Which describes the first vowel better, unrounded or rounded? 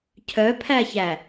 rounded